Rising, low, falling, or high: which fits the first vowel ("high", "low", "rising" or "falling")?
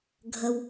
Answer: low